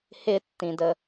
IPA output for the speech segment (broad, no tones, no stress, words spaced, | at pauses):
hɪtːĩdə